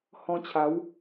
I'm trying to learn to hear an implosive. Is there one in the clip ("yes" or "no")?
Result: no